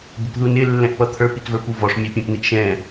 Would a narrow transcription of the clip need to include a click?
no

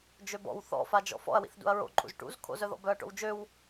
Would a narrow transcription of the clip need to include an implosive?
no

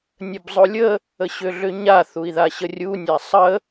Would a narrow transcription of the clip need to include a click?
no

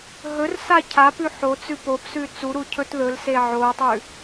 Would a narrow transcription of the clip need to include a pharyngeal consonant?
yes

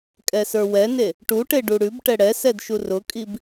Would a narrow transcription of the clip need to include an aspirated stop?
no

